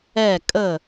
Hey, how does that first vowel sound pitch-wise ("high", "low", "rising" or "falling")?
falling